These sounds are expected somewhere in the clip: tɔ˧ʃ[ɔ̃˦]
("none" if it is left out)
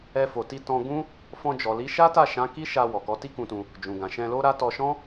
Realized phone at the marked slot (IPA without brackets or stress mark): ɔ̃˦